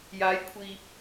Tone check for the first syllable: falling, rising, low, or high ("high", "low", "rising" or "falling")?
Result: rising